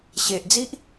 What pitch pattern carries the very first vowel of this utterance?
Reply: low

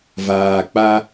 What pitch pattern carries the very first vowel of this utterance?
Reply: low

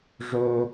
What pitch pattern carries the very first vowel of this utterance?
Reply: low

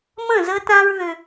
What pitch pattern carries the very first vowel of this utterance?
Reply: falling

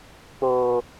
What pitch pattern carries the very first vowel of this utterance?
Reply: low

